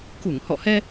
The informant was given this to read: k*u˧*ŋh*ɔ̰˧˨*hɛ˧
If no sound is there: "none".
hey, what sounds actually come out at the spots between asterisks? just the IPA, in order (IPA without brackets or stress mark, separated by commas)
u˧˩, ɔ̰˧˨